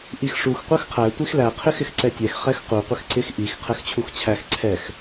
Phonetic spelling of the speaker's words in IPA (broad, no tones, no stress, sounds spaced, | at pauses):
ʔ i x ʂ u x qʷ ɜ x qʰ æ tʷ i x l æ qʰ ɪ x ɪ x ǀ ɛ tʲ ɛ x χ ɛ x q u qʷ ɪ x ǀ ɪ x ʔ i x qʰ ɛ x t͡ɕʰ u x t͡ɕʰ æ x ǀʰ ɛ x